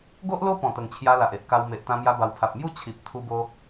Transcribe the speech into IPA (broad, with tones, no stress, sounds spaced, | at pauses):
ɡ o˦ ʔ l o˦ p ɔ̃˨˩ t̪ ə˨˩ ŋ t͡ɕʰ j a˧ l a˨ ʔ e˦ ʔ k a˧ w m e˨ ʔ t̪ ã˧ m j a˧ b a˨˩ w pʰ a˨ p̚ m j u˥˧ t͡ɕʰ i˨ p̚ t̪ʰ u˧ b o˧